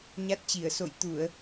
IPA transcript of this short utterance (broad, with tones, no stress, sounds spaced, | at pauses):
ɲ a˦˥ t̚ t͡ɕ i˧˩ ə̯ s o̰˧˨ j t̪ u˧˩˨ ə̯